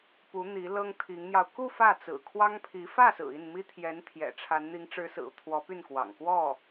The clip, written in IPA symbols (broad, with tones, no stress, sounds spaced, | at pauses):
p u˧˥ n̪ i˧˥ l ɤ˥ ŋ t̪ʰ i˧˥ ŋ n̪ j ɑ˧ ʊ̯ k u˥˧ f ä˥˩ t͡s ɹ̩˨˩ kʰ w ɑ˥ ŋ pʰ i˧˥ f ä˥˩ s ɹ̩˨˩ i˥˩ n m i˥ t̪ʰ j ɛ˧˥ n t̪ʰ j ɛ̰˨˩ ʈ͡ʂʰ a˧˥ n n̪ i˧˥ ŋ ʈ͡ʂ ɻ̩˧˥ s ɹ̩˨˩ u˦ t̪ʰ w ɔ˧˥ p y˥˩ n k w ɑ̰˨˩ ŋ k w ɔ˥˩